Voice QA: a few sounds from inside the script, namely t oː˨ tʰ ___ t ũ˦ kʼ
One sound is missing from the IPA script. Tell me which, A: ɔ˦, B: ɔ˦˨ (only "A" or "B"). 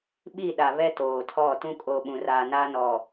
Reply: B